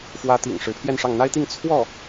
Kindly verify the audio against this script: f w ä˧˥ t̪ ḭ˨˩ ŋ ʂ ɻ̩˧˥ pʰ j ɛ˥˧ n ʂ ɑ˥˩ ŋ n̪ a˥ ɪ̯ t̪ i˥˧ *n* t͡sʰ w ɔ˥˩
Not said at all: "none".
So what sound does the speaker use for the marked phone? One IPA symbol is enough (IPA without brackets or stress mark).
ŋ